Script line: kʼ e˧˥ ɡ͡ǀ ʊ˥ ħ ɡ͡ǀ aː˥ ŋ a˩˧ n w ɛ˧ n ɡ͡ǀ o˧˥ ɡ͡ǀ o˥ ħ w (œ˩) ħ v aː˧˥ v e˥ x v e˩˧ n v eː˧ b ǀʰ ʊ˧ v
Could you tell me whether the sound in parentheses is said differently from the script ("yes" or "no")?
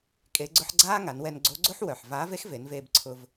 no